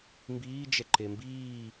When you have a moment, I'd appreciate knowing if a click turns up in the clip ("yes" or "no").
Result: yes